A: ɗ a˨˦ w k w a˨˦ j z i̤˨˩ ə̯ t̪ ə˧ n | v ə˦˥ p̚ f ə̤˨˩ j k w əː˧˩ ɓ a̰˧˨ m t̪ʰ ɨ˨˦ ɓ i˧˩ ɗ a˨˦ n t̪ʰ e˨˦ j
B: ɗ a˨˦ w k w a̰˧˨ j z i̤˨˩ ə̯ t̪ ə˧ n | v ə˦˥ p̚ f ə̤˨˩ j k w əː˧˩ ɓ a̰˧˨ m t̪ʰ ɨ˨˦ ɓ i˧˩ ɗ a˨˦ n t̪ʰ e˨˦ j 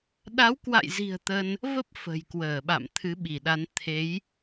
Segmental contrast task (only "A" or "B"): B